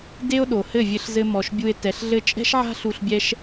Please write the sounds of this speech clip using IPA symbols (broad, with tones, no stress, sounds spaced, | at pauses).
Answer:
d e˦ o̯ ɗ o˨ h ɘ˦˨ vʲ ɘ˧ ɬ z ɘ˧ m ɔ˨ ʃ bʲ u˧ e̯ t ɛ˨ ɬ ɮ ɘ˧ t͡ʃʼ ɛ̤˦ ʃ ʕ a̤˦ ɬ u˧ ɬ bʲ ɛ˦ ʃ